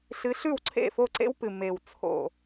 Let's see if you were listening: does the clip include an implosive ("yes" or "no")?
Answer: no